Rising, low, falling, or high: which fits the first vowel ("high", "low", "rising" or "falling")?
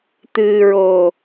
low